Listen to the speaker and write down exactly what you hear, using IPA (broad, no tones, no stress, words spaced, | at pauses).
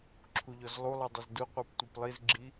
ǁʰuʎɔzlˠulˠɯ dˤuzduqʷɯp tʷɯplˠizɡ͡ǁi